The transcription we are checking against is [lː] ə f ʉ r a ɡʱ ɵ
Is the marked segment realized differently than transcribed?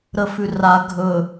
yes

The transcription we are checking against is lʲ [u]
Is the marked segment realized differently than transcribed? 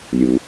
no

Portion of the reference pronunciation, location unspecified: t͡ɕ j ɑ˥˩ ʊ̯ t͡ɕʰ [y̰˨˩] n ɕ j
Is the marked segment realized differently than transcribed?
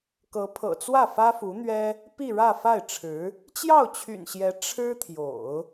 no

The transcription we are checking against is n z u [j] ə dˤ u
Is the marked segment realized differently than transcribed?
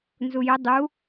no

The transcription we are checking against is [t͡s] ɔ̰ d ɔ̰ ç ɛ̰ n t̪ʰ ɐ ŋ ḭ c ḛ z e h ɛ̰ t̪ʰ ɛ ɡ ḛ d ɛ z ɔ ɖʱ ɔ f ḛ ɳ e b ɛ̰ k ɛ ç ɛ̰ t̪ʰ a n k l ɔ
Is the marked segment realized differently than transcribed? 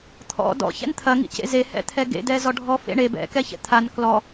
yes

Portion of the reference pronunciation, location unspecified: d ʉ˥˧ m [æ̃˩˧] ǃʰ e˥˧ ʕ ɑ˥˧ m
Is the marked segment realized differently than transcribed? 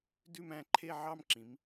yes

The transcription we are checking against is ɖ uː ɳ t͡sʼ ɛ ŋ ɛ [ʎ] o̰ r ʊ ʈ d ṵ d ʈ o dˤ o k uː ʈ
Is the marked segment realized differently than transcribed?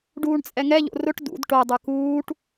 no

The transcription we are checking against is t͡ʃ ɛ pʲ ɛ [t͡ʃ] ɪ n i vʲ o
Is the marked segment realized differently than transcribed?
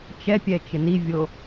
no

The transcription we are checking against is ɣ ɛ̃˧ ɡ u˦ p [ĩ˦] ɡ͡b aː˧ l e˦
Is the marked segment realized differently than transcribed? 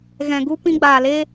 no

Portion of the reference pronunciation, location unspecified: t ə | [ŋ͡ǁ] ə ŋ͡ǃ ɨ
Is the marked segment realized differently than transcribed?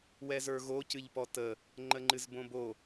yes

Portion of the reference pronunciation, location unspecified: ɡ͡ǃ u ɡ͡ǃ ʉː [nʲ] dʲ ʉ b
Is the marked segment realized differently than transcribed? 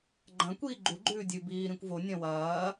yes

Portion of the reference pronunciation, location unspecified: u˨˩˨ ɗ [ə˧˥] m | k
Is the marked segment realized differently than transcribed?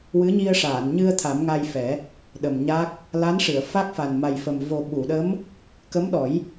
no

